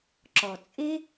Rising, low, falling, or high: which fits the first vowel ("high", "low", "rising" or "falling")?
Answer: low